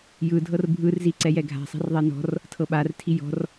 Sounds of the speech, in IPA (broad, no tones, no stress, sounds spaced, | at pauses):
j ɯ dʱ ɤ r bʱ ɯ r z i ǀ ɛ j ɛ ɡʱ a̤ sˤ ɛ̤ r ðˤ e n ɔ̤ r | tʰ ɤ ɓ a r tʰ i j ɔ̤ r